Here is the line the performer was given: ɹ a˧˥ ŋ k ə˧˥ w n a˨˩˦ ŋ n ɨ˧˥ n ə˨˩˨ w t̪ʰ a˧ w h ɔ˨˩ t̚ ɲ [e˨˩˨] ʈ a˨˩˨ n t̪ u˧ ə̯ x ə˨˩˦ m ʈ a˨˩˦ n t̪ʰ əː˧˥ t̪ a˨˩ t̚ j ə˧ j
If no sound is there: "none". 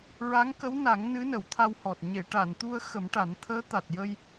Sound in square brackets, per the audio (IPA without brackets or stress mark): e˨˩˨